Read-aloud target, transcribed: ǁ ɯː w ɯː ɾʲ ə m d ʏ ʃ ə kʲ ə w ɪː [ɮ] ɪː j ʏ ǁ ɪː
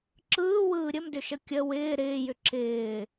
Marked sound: incorrect: ɾ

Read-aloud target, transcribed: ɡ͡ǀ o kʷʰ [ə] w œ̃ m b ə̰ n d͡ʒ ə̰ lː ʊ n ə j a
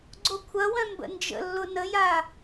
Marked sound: incorrect: ɐ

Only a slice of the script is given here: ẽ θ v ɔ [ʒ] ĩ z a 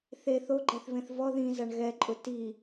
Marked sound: incorrect: ð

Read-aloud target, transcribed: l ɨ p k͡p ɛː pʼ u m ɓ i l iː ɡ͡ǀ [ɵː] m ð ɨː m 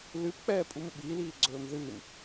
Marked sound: correct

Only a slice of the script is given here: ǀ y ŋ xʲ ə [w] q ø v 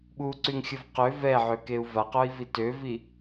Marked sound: incorrect: v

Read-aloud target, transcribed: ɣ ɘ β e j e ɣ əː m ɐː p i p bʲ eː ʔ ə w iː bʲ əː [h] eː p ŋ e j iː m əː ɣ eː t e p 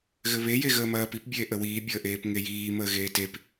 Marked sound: incorrect: ʔ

